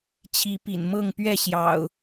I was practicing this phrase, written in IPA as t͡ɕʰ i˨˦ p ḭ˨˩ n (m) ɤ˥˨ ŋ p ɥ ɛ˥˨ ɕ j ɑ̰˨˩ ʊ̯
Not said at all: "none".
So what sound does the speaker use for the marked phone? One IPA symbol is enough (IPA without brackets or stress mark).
m